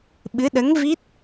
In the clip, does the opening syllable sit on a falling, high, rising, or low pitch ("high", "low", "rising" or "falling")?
rising